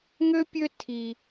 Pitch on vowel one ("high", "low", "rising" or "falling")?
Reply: high